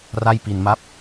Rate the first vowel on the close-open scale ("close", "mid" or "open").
open